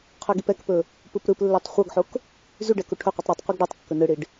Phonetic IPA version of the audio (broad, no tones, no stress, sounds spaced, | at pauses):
qʰ ɵ ɡ i p ɛ k p ɵ | p ɯ p ɾ ɯ p lː ɛ tˤ χʷ ɤ ɡ ħ o k | z y ɖ ɛ k u ʈʰ ɵ qʷ i tˤ ɾ y tˤ qʷ ɯ ɡ ɖ ɛ tˤ kː ɵ n ɯ ɽ i ɖ